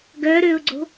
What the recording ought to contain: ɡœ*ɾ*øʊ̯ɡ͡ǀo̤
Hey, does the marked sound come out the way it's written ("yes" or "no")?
yes